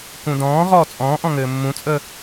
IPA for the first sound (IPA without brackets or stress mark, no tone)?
k